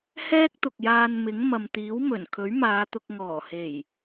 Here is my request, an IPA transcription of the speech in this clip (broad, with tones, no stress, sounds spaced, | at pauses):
h ɛː˥ k̚ t̪ ʊ˨ k̚ j aː˧ n m ɪ˨˥ ŋ m ɐ˨ m t̪ iː˨˥ w m ɵ˨˩ n kʰ ɵ˨˥ ɥ m aː˨˧ t̪ ʊ˧ k̚ ŋ ɔː˨˩ h e˨˩ j